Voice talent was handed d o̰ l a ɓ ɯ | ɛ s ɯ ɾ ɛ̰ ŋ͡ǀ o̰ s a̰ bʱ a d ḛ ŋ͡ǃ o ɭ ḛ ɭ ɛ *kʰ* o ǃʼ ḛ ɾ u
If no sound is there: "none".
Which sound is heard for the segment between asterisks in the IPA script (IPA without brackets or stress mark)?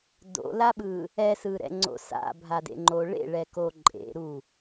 k